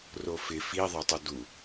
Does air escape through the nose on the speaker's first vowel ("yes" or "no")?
no